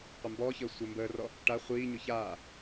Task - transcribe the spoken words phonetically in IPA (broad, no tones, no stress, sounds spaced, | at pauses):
qʷ ə m b ɔː ç əː sʷ əː m b əː r ɔ | ʈ a χʷ iː ɲ ʊ ç aː